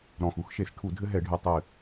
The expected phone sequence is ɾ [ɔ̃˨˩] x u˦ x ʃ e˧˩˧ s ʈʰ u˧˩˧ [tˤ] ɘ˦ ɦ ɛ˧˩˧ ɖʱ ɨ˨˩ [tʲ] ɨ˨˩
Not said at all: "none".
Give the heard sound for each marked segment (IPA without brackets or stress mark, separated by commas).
ɔ̃˨˩, dʱ, tˤ